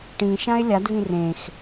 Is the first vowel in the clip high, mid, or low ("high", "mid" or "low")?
high